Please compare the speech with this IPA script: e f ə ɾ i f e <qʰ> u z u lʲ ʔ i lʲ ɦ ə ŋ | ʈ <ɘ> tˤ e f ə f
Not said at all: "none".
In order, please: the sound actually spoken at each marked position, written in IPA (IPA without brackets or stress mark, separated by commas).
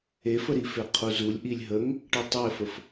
qʰ, ɘ